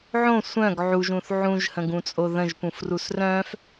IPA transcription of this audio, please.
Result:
ʕõ sʷœ̃ɡ ʕuʒũθ ʕũʒhə̃ɡũt͡sʼo ðə̃ʒpũfrus rœ̃f

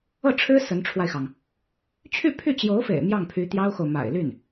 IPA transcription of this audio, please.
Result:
ɤ˥˩ʈ͡ʂʰɻ̩˥ sə˧˥nʈ͡ʂʰwa˧ɪ̯xɑ˩ŋ | t͡ɕʰy˥˧pʰy˥˩t͡ɕjo˧˥ʊ̯fḛ˨˩ɪ̯ mjɑ˥˩ŋpʰy˧˥ t̪jɑ˥ʊ̯xo˨ʊ̯ ma̰˨˩ɪ̯ly˥˩n

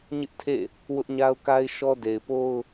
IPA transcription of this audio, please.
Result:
ɲɪ˦ʔtʰḛ˦˨ | wʊ˦ʔɲa˦ʊ̯ ka˦ɪ̯ʃɔ˦ de˨ɪ̯po˦ʊ̯

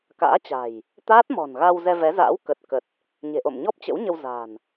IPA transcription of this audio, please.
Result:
ka̰ː˧˥t͡ɕa̤˨˩j | t̪aː˦˥t̚mɔ̤˨˩nɣa˧w zɛ˧vɛ˨˦za̰ː˧˥w kə˨˩t̚kə˨˩t̚ | ɲe̤˨˩ʔo̰˧˨mɲɔ˦˥p̚ t͡ɕə̰˧˥wɲə˧w za̤˨˩n

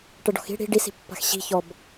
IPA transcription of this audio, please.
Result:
ʈəɖɔ̤xi̤ ɽi̤ ɖisi̤ pːa̤xɕi̤ çɔb

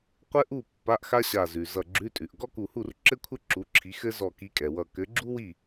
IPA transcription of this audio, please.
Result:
qʷɘ˥ʔu˥˨ pːa˧˥˧ʔxa˥ɕa˧˩ zʉ˩zʌ˧˩ɡ͡ǁʉ˧˥˧tʼʉ˩ʔ ɡɔ˥ku˧˩hu˥˨r ǁɘ˥kʷʰɘ˥ ǁu˨˦ǁʰi˨˦ xɘ˥ zɔ˧˩ki˨˦kʼɛ˩ wʌ˧˩ kɘ˨˦ɡ͡ǁu˥wi˥˨

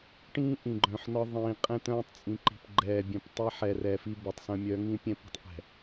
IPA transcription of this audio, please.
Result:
ʈĩː˦ ʔĩ˨ɡ͡ǃœ̃˨ħnɒ˦ ðˤĩː˨qʼɛ̃˦ t̪œ̃ː˦tˤt͡sʼĩ˨ǃi̤˨pɡ͡ǃɛː˨ bʲœ̃˦p tˤɛː˦ħɛ˨rɛː˨ fi˦bə˨tˤsə̃˦ mʲœ˨˦ŋĩ˦pʲɛ̃˦p i̤˦tˤʔɛ̤˨

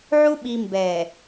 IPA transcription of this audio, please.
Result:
ʕu˦ ɓi˨ mbɛ˨

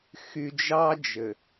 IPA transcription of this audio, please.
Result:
xy˨d͡ʒɑ˦d͡ʒɘ˨

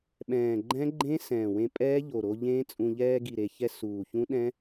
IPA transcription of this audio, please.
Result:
ɓɛ̃ː˨˩ɡ͡ǃɛ̃˦˥ ɡ͡ǃẽ˦˥sɛ̃ː˨˩wẽ˧ pʼɛː˦˥ʎo˨˩ɾo˧ ʎẽ˦˥t͡sʼũ˧ ʎɛː˧ɡi˨˩ɾe˨˩çɛ˧ suː˨˩çũ˦˥ɗɛ̃˦˥

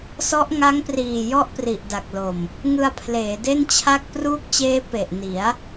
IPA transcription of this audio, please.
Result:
sɔ˦˥ʔ ŋa˦˥ŋpriː˨˩ jɔ˥˩ʔpri˨˩ʔda˨˩k̚lo˨˩m | ŋɯ˧a̯pʰleː˩˦de˥˩nt͡ɕʰa˥˩k̚ pruː˦˥k̚t͡ɕeː˦˥ pe˨˩ʔni˩˦a̯

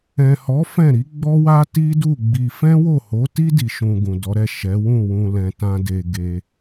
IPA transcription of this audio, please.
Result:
ɛ̃˨hɔ˨˦ fɛ̃˦˨ɾi˨˦ɡ͡bɔ˦wa˦ ti˦du˦˨ ɡ͡bi˧ fɛ̃˦wo˦˨ho˨˦ti˦ di˧ ʃũ˧ɡũ˨dɔ˨˦ ɾɛ˦˨ʃɛ˨˦ wũ˦˨wũ˨ lɛ̃˧tã˦de˧ ɡe˧

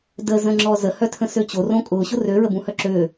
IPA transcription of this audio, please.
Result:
dəzə̃ŋ͡ǁɔ zəhœtʰə̃sø t͡ɕorõ kʼʊːɕʊ røɹəbũhœ ǁø

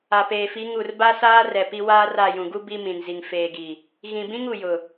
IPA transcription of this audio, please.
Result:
a˨peː˨fi˨˦ ŋu˨r ba˦ saː˦ rɛ˨pi˦ waː˦ra˦˨ jũ˨ɡu˦ bi˦mĩ˨n zi˨ŋ feː˨ɡi˨ | ɣĩ˨bĩ˦ŋ u˨jʊ˨

